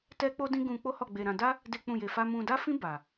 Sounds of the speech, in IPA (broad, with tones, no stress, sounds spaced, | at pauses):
t ɛ˦ k͡p o˦ d ĩ˦ ɡ ũ˧ k͡p o˦ h ɔ˦˨ ɡ͡b e˧ ɾ ã˧ d a˦ | d e˦ k͡p ũ˦˨ j e˧ f a˦ m ũ˧ d a˦ f ĩ˦ b a˧